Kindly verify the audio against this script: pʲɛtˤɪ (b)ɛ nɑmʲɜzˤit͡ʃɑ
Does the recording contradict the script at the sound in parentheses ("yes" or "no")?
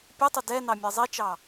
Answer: yes